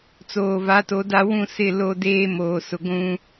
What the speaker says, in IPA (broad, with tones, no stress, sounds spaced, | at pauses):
t͡s oː˨ v a˨˦ t o˨˦ d a˦ w ũ˦˨ s ɪ˦˨ l o˦ d eː˦ m oː˨ s ʊ˨ ɡʷ ũ˦